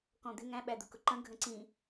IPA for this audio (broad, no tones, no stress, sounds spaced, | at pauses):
k ɔ̃ d̪ ɪ ŋ æ̃ ɓ æ d̪ ʊ k ʊ ǃ ə̃ ɡʱ ə̃ ǀ ĩ